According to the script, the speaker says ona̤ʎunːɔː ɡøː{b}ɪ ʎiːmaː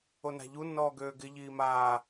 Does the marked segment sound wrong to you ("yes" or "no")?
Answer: yes